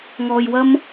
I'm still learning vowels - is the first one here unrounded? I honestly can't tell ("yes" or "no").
no